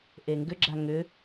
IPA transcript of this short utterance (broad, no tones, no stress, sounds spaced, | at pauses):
ʔ e ŋ ɡ ʏ ɡ͡ǁ a ŋ ʏ